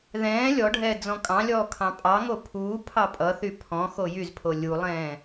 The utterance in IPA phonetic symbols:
ðɛ̃ː lʲɔɖʱɛː d͡zɔ̃kʼɑ̃lʲɔː kʰɑ̃pʼɑŋo pʰuː pʰɑpʼʌθy pʰɔ̃ xojyzpʰo lʲulˠɛ̃ː

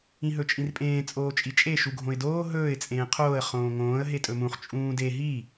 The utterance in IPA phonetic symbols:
ĩɦɵt͡ʃʼĩrpʼẽː t͡sʼoːt͡ʃʼit͡ʃʼe ʃuɡʱõɪ̯doː ɦɵːɪ̯ t͡sʼẽːqʰoːə̯ χõːŋõːə̯ ɦetʼɵmũχ t͡ʃʼũːde ɦi

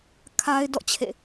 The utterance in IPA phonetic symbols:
kʰa˦ɪ̯dɔ̰˦˨ t͡ɕʰḛ˦˨

